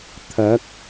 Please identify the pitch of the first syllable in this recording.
rising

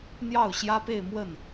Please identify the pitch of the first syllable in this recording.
falling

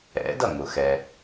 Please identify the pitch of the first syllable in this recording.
rising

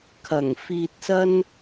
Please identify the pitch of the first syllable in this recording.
low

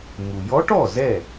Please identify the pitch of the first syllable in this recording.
low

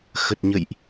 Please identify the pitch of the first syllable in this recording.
low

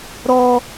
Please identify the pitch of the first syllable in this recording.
high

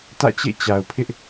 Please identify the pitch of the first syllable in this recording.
falling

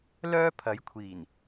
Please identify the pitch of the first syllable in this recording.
high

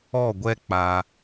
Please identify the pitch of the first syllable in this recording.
falling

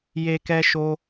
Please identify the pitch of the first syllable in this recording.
high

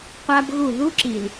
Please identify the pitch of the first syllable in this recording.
high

